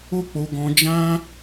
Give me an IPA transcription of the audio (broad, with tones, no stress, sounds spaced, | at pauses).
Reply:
o˦ k͡p o˧ ɡ ɔ̃˧ d͡ʒ ã˦